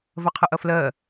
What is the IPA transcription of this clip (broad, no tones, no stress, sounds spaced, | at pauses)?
v ɐ qʰ ə ʔ ɐ f l ɜ